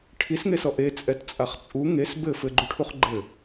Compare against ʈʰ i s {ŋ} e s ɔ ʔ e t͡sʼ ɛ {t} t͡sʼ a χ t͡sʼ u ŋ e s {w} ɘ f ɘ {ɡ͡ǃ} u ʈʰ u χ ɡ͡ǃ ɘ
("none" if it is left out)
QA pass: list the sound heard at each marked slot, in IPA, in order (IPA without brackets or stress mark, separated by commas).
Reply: ŋ, t, b, ɡ͡ǃ